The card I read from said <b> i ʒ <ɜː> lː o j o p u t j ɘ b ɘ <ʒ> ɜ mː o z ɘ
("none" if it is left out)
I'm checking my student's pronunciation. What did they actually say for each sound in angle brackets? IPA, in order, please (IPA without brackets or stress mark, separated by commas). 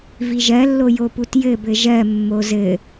v, ɜ, ʒ